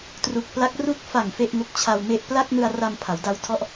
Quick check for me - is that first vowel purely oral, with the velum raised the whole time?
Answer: yes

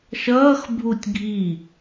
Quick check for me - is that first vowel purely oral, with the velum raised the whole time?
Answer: yes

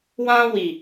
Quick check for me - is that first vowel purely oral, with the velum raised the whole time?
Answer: no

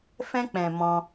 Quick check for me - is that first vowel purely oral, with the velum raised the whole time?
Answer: no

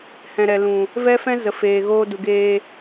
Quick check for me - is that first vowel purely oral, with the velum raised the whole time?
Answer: no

